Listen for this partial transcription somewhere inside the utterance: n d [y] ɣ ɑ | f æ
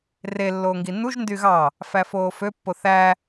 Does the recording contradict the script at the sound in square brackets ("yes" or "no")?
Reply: no